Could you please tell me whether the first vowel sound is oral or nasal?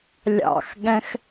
oral